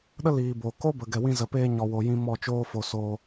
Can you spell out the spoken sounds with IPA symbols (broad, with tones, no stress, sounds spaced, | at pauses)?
ɗ ə˦ l iː˨ b o˨ k o˦ b ə˨ ɡ ɛ˨ w ĩ˧ z ə˨ p eː˧ ɲ ɔ˨ w o˨ j ĩ˧ m ɔ˦˨ t͡ʃ oː˦ f o˧ s oː˧